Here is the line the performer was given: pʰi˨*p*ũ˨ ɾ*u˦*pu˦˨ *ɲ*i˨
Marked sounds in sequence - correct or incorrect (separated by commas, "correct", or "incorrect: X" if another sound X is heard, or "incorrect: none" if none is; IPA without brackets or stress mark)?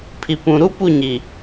correct, correct, correct